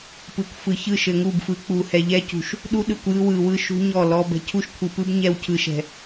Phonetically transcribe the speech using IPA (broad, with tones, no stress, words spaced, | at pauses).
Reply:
pɯ˨kʷfɯ˨çɯ˦˨ ʃɘ˨ŋu˦˨bfɯ˨˦ k͡pu˨hɛ˨ ʎɛ˦cṳ˨ʃ | ɗu˦ɗɯ˨kʷ jɯ˦wɯ˨wɯ˦ ʃṳ˦ ɲɔ˦˨lɔ˦bɛ̤˦ cʰu˦ʃkʷʰɯ˨pɯ˦b ɲɛ˦wcʰɯ˨ʃɛ̤˨